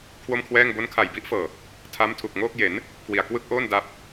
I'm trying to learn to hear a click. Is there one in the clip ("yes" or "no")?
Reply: no